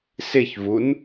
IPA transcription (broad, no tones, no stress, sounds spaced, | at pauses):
s ɪ ç v u n